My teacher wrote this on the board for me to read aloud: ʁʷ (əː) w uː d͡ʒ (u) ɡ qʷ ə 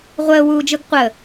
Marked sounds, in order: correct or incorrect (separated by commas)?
correct, incorrect